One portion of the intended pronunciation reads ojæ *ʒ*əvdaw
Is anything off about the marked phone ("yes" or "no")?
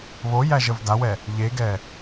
no